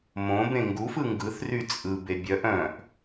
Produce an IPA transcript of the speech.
m õ b ẽ ŋ ɡ u f ɯ ŋ ɡ ɯ θ r y t͡sʼ ɯ b e bʲ œ ʔ œ̃ ʔ

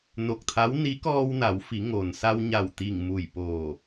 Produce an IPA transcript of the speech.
n o˧˩ k̚ t̪ʰ a˧˥ w n i˧˥ k ɔː˧ w n a˩˧ w f i˩˧ ŋ oː˩ n s a˧ w ɲ a˧˩ w t̪ i˧˩ ŋ m u˧˩ j p oː˧˩

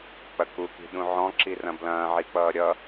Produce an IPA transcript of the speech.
k͡p ɐ k u k i̤ ɗ ũ ʕ ɔ̃ ǁ i r ɐ̃ b l ɐ̃ː ʕ i k͡p ʌː ɾʲ ʌ

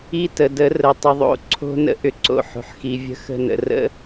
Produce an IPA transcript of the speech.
i˦ t ə˨ d ə˨˦ r ə˧ tˤ ɪ˧ ðˤ o̰˦ ǀʰ o̤˦ n ə̰˦ ʔ ʏ˧ ǀ o̰˦ ħ o̤˨ ħ x i˨ vʲ ə̤˧ x ə̤˧ n ə̰˨ r ə̰˦

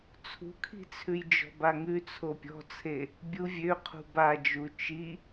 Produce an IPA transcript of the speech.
t͡sʰ ṳ kʰ i̤ t͡sʰ ʉ j d͡ʒ ɔ̤ b a ŋ ʉ t͡sʰ o pʲ ɔ̤ t͡sʰ e | bʲ u vʲ ø qʰ ṳ b a d͡ʒ u t͡ʃ i

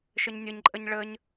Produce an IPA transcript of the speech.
ʃ ə ɲ nʲ ə ɲ ǃʼ ə ɲ ɭ ə ɲ

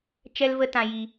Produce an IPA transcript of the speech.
t͡ʃ ɛ˦ l v ə˦ t ã˧ j i˧

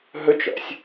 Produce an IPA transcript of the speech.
ɦ ɵ t͡ʃ ɔ̰ sʲ

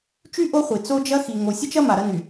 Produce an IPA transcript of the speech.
t͡ʃ y˦ ʔ o˦ χʷ i˨ t͡s o˦ d͡ʒ ɐ˦ x i˨ ŋ o˨ sʲ ə˦ t͡ʃ ɐ˦ m a˨ ɾ ɐ˦ n y˨

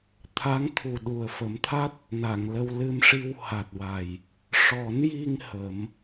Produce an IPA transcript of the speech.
t̪ʰ a˧˥ ŋ t̪ʰ u˨˩ ɗ u˨˩ ə̯ f ə˨˩˦ m t̪ʰ a˦˥ t̚ | n a˨˩˨ ŋ l ə˧ w l ɨ˧ m ʂ i˧ w h a˨˩ t̚ w a˨˩ j | ʂ ɔ˨˩˦ n j i˧ ŋ h ə˨˩˦ m

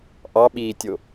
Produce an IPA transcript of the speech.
ʔ ɑ ɓ iː tʲ o

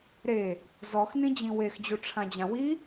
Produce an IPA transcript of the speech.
ɾ e | z ɔ x n ĩ d͡ʑ ĩ w e x d͡ʑ u ʈ͡ʂʰ ã d͡ʑ ã w i

